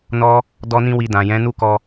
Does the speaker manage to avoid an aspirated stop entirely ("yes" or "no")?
yes